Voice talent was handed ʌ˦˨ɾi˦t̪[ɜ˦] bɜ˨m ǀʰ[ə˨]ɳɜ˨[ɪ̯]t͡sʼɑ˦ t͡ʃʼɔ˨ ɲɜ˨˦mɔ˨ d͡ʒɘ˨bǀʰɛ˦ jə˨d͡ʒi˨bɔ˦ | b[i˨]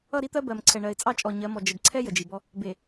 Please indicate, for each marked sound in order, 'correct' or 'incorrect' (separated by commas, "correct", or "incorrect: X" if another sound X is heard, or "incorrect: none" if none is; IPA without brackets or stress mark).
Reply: correct, incorrect: ɛ˨, correct, incorrect: e˨